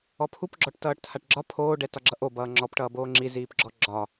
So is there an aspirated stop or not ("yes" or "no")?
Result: yes